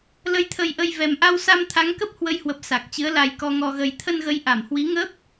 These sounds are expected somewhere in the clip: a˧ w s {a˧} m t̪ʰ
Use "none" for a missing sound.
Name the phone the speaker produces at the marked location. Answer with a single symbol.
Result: a˧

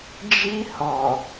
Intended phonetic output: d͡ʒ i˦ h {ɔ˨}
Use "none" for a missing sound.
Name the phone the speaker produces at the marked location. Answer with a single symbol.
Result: ɔ˨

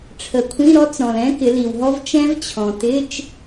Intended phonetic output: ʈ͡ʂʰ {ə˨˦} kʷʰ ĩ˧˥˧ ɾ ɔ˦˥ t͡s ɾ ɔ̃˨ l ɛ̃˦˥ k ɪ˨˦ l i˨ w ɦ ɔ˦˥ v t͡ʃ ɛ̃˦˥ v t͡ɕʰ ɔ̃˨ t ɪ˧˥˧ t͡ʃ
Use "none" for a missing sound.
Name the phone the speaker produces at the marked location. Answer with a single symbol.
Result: ə˨˦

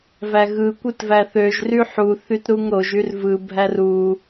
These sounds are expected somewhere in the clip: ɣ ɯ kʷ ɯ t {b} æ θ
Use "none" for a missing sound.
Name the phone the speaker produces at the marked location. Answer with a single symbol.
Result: v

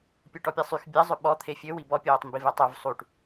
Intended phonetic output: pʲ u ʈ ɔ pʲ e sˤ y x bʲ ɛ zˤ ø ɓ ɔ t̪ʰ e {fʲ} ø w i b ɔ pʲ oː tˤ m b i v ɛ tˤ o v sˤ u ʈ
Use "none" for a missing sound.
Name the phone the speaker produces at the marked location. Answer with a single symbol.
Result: fʲ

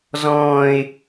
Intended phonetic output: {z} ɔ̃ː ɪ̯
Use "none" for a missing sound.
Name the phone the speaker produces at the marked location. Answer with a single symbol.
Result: z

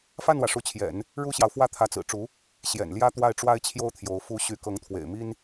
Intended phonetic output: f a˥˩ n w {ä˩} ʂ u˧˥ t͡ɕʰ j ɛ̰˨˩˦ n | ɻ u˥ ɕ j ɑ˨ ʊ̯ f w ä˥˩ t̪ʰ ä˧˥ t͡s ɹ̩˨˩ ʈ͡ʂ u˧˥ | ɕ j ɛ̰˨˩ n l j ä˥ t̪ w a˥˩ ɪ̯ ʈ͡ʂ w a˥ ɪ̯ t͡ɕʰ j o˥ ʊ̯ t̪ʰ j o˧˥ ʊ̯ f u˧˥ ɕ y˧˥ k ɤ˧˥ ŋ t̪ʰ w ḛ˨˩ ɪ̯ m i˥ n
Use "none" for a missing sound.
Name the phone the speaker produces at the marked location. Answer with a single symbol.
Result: ä˩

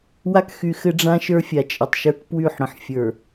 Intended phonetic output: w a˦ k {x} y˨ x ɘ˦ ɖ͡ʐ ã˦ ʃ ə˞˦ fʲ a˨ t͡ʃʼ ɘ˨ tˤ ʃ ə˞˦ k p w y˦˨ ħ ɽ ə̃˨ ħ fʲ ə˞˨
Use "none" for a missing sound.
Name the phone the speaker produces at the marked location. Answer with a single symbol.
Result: x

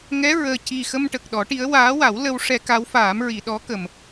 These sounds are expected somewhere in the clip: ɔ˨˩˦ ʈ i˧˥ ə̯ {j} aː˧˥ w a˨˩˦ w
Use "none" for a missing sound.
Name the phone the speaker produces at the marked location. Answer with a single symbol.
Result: w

